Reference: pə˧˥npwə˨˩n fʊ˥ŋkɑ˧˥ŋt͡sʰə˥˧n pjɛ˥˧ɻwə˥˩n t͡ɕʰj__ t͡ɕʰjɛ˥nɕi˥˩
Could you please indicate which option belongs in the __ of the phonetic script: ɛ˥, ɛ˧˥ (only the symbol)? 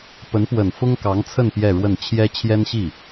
ɛ˥